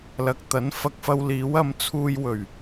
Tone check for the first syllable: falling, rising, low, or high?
low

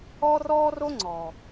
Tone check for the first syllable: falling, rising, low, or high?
high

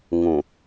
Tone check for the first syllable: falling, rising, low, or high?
low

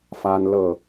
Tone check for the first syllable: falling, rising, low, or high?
high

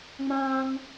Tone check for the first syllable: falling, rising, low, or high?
high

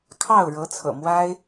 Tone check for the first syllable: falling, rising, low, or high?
falling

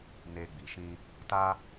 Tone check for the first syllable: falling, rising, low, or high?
low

